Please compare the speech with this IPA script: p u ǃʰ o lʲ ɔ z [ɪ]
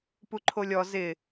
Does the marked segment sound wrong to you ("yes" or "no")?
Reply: no